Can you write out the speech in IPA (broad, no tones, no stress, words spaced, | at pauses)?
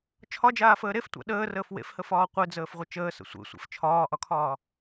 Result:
t͡ʃʰɒd͡ʒaːfəː ɾeftʷa̰ ɗəːrəːf wḛfhəfɒː qʷed͡zəːfʁʷə t͡ʃəːsə̰ sʷḛsʷḛf t͡ʃʰɒːʔɒkʰɒː